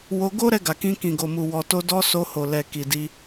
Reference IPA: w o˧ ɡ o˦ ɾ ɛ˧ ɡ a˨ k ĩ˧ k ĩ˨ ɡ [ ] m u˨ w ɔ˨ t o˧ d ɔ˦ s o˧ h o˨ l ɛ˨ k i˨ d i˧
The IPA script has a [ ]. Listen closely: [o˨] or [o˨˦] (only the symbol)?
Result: o˨